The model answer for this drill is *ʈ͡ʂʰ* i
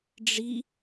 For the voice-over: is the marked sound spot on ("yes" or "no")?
no